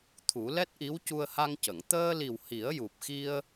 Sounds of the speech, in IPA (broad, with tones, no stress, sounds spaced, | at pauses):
t̪ʰ u˨˩˦ l ɛ˦˥ t̚ ʔ i˧˥ w c u˧ ə̯ h a˧ ŋ c ə˨˩˨ ŋ t̪ əː˧ l i˨˩ w h i˨˩˦ ə̯ j u˨˩ p̚ x i˧ ə̯